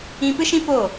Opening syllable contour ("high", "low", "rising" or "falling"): high